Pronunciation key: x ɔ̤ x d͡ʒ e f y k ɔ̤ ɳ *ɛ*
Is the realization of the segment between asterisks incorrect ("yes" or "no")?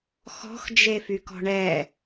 no